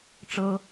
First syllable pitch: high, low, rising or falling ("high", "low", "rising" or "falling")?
high